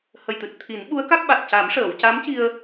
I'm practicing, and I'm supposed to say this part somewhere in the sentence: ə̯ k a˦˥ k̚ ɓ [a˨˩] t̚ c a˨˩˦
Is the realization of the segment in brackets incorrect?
no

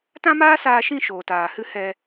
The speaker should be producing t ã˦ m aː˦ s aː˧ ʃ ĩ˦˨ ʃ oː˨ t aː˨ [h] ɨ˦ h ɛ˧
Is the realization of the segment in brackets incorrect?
no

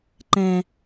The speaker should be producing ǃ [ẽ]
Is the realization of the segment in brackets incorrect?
yes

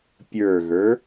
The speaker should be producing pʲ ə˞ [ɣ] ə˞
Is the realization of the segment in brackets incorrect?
no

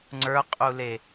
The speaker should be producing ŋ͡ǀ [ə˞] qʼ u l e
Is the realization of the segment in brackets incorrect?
no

